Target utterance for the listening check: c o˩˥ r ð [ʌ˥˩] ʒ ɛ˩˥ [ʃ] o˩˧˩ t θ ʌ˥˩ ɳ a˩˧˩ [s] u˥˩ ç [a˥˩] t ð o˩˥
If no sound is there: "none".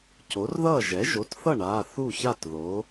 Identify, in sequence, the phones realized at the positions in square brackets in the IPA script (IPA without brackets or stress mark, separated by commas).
ʌ˥˩, ʒ, θ, a˥˩